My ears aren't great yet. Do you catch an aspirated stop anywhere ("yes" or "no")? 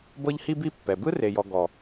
no